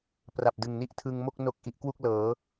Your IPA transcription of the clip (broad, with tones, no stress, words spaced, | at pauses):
pra˨˩p̚dɯ˨˩ŋni˦˥ʔ tʰɯ˧ŋmo˥˩k̚no˦˥k̚ ʔi˦˥ʔkwu˥˩k̚lɤː˩˦